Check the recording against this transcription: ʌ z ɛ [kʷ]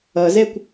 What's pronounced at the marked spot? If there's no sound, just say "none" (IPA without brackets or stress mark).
kʷ